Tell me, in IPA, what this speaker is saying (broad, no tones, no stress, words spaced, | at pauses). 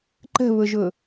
ǃə̤βʊʒʊ